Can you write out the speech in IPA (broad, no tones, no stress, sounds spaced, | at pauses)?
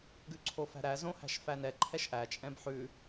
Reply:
ɡ ʉ ǀʰ o f æ̤ ɾ æ z õ h æ̤ ʃ f æ n ɛ ǃʰ ɛ ʃ ʔ æ t͡ʃʼ ɛ̃ b ħ ʉ